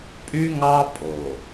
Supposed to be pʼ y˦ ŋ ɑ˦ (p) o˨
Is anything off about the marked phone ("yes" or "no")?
yes